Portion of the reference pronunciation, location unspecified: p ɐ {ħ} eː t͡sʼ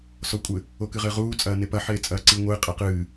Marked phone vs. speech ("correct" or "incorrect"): correct